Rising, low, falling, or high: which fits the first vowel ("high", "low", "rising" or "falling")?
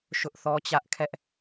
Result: high